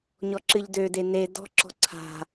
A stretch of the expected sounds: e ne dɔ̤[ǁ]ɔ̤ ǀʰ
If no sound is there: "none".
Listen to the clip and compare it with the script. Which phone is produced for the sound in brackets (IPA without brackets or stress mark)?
ǁ